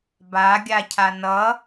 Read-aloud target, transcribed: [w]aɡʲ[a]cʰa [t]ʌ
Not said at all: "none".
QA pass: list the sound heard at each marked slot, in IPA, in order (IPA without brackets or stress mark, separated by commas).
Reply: b, a, n